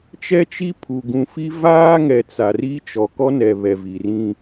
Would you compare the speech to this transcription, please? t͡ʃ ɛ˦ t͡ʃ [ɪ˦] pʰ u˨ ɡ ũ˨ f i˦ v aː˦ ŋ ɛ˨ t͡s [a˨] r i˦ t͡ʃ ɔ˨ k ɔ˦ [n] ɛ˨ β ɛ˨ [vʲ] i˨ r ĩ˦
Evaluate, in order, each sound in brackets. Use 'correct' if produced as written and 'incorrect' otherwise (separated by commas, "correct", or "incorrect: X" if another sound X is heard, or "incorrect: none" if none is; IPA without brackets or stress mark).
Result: incorrect: i˦, correct, correct, incorrect: v